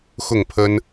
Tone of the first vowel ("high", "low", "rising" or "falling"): falling